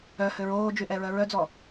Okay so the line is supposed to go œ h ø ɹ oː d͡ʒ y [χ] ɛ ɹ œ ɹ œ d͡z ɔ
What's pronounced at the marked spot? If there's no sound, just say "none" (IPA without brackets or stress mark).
ʔ